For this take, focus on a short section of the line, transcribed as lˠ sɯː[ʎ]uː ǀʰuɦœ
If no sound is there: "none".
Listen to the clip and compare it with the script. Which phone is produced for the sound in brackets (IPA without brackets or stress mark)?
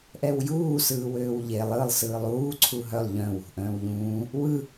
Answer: lˠ